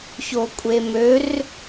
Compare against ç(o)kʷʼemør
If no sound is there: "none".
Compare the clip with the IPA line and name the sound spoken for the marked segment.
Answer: o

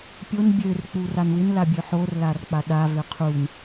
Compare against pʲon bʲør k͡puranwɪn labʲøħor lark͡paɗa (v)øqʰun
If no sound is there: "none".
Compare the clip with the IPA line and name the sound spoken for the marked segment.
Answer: v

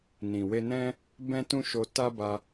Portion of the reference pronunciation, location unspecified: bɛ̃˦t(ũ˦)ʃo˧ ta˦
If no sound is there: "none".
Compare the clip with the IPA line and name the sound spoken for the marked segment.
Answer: ũ˦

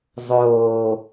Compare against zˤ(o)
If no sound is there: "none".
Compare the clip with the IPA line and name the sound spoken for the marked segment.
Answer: oː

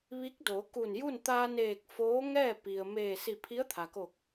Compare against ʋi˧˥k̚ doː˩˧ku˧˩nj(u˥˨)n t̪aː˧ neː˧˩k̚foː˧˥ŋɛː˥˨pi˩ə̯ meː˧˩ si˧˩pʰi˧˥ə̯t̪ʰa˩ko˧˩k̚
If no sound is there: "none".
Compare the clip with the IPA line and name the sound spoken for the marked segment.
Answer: u˥˨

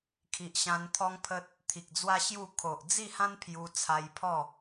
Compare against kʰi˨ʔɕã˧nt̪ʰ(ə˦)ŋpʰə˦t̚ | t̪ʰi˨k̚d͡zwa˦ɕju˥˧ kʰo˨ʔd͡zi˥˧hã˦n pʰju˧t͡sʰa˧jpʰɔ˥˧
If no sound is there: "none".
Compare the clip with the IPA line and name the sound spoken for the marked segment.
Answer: ɔ˦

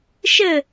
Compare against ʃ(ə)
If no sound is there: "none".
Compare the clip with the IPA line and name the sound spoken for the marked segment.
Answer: ə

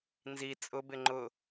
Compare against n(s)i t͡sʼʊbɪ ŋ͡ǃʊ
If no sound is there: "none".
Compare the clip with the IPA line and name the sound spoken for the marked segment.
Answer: z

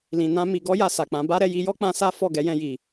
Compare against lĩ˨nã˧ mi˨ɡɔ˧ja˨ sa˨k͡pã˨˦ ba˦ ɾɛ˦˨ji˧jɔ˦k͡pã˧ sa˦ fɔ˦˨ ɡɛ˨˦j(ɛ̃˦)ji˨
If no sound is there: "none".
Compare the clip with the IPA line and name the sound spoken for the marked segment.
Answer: ɛ̃˧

